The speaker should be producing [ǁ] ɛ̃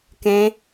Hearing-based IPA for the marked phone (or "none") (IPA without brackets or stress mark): k